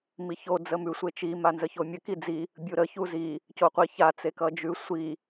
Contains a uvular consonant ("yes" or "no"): yes